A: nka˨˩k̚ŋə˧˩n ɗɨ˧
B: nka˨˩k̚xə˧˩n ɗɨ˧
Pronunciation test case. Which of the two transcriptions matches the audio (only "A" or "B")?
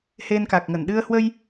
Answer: A